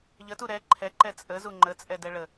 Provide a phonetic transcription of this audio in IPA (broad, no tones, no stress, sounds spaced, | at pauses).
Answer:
ʎ ə t u ɾ ɛ ǃʰ ɛ ǃ ɛ t͡sʼ ə z u ŋ͡ǃ ə t͡sʼ ɛ d ɛ ɭ ə